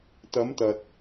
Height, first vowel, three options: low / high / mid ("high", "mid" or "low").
low